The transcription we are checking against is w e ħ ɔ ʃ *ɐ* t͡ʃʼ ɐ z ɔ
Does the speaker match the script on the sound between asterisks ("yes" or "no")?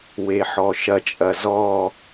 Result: yes